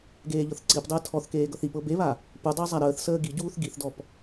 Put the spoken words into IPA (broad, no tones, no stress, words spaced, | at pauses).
ɡeːʎɤθǀipdˤəː tʰɔθkeː ɡɤθipɤ beβa | pudˤəː zˤaɾəːθsəː ɡiɟuːθ ɡiθdɔp